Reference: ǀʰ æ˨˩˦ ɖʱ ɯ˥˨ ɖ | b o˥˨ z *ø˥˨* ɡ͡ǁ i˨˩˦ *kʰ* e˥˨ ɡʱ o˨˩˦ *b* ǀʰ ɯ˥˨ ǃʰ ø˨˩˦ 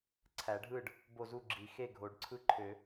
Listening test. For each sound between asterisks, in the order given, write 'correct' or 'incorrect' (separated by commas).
incorrect, incorrect, incorrect